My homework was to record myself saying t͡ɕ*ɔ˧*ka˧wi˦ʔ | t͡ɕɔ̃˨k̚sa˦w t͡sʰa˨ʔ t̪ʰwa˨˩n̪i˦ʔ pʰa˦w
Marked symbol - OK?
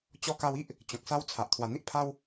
yes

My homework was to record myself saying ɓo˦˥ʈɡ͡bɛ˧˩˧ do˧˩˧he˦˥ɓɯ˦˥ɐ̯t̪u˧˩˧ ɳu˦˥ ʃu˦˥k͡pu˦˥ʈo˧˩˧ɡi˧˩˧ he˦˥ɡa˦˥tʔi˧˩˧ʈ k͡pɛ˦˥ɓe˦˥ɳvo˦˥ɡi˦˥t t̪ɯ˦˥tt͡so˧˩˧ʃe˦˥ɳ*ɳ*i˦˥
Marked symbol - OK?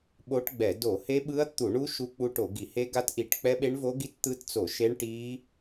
no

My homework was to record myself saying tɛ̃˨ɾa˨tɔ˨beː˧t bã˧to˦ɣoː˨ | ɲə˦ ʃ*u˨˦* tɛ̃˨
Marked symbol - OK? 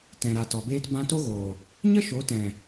no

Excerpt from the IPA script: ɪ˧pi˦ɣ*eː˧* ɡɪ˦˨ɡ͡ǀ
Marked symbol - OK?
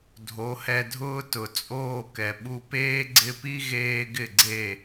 yes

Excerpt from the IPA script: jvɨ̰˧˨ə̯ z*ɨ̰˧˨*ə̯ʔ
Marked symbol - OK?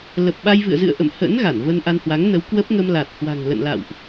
yes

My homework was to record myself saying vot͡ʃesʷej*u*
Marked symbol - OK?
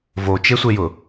no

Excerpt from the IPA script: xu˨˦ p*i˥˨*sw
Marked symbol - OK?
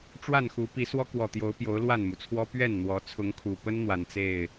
no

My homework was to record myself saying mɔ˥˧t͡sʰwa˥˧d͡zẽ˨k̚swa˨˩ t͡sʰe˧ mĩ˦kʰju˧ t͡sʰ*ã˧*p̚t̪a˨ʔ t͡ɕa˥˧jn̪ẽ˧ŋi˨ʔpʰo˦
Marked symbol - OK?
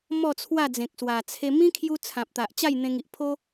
no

